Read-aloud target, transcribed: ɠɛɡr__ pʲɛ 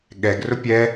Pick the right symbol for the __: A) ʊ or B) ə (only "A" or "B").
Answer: A